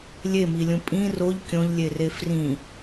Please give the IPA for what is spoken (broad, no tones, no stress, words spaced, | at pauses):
lʲemilʲũ pʼĩ roʎ kʲõʎlʲere frĩ